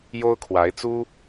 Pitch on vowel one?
high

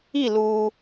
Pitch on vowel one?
falling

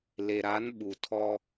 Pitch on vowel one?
low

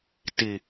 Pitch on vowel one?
low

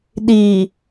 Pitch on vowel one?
low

